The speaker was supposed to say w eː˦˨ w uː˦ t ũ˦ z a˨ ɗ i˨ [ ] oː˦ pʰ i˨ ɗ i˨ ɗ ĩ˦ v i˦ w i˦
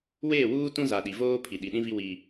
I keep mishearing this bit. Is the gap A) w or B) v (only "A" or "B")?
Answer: B